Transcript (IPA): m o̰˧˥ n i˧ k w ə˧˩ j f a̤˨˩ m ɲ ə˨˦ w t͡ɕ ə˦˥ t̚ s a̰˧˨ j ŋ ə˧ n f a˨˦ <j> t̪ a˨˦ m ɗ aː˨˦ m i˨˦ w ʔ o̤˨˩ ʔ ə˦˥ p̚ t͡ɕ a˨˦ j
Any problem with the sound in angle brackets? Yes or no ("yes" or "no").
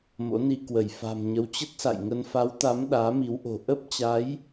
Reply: yes